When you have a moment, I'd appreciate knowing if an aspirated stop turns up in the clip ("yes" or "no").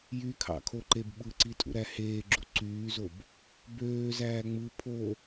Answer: yes